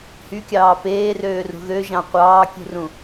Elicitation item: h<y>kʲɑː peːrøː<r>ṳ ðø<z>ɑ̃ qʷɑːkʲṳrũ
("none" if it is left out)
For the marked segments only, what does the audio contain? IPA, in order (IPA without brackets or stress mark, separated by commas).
y, r, ʒ